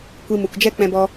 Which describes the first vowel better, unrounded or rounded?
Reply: unrounded